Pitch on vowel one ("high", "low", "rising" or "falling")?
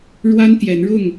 high